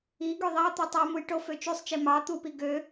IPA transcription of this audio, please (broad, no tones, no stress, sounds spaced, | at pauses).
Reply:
i ɡ ø ðˤ ɑ t̪ y tˤ u m u j ʈ o f ø t͡ʃ y sˤ t͡ʃ i m ɑ t̪ u p i ɡ ø